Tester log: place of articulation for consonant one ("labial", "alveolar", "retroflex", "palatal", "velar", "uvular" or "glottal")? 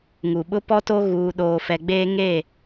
velar